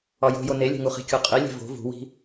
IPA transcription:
ɒ j o̤ j o n e lʲ e̤ ŋ u χ i̤ kʲ u qʼ i lʲ e̤ v o̤ v ṳ w i̤

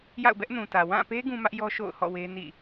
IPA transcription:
j a̰˦˨ ʊ̯ b ɛ˦ ʔ n ũ˨ t ä˨ w ã˦˨ p e˦ ɡ ũ˦ m ä˦ ʔ j ɔ˦ ʃ o̰˦˨ ʊ̯ h ɔ̰˦˨ w e˦ n ḭ˦˨

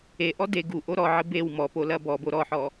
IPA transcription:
e ʔ ɔ d e ɡ u ʔ o ɾ ɔ ʕ ɘ b e w m ɔ p o l ɐ b ɔ b o ɾ ɔ ħ ɔ

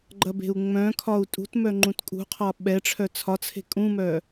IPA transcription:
ɡ͡ǃ ɐ b e̤ u̯ ŋ͡m œ̃ kʰ ɒ u̯ tʼ ṳ t m œ ŋ͡ǃ ũ t kʼ ṳ qʰ ɒ ɓ ɛ ʈ͡ʂʰ œ t͡sʰ ɒ t͡sʰ e̤ kʼ ũ m œ

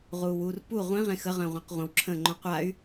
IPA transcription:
ʁ uː w uː r p u ʁʷ ĩ ʁ ẽ x ə ʁ ə̃ː ʁʷ ə̃ː q ʁʷ ə̃ w ǁʰ ə̃ː ŋ͡ǃ õ qʷ a y̯

